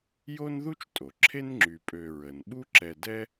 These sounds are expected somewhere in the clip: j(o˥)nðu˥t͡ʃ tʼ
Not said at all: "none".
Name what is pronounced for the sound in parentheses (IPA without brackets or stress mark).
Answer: o˥